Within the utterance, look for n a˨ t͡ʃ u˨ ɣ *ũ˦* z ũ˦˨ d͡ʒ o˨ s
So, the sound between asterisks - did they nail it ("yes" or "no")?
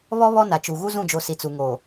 no